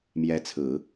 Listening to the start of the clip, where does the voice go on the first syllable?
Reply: rising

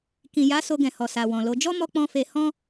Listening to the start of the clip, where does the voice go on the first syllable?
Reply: low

